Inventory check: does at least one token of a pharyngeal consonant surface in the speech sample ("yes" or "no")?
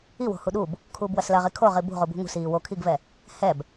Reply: no